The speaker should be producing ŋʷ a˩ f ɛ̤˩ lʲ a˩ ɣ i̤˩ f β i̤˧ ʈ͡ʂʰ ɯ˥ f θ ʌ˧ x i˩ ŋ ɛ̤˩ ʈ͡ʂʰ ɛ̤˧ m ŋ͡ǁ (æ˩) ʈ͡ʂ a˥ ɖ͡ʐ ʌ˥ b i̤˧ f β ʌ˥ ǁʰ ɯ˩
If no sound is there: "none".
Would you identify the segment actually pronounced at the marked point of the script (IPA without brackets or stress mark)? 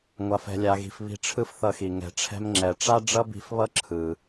ɛ˩